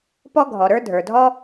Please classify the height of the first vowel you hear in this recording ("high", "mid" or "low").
mid